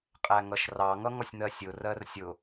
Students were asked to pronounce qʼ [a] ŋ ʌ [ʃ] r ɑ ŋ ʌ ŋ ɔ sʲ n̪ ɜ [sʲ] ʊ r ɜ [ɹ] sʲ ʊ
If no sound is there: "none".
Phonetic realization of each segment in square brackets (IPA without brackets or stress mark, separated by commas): æ, ʃ, sʲ, r